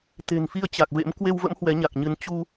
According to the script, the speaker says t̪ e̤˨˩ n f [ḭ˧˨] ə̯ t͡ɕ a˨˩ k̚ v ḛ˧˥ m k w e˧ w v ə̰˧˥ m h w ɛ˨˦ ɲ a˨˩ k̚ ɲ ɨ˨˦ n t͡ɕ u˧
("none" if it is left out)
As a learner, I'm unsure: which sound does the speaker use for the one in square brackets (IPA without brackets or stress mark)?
i˧